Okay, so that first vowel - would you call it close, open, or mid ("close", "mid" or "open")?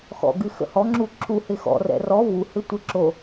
mid